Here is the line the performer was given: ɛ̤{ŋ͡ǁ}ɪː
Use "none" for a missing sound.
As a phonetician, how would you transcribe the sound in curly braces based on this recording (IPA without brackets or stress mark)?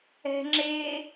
ŋ͡ǁ